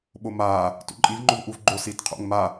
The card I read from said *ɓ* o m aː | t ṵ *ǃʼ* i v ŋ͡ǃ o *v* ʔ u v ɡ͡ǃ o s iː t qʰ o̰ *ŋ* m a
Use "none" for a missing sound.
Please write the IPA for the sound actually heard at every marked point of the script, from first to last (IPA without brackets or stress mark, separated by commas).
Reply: ɓ, ǃʼ, v, ŋ